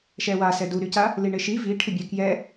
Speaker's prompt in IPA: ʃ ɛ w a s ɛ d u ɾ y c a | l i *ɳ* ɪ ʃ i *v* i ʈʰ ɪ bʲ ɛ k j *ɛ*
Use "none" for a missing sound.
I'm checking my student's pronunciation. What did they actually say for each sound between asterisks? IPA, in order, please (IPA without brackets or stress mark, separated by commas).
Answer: ɳ, v, ɛ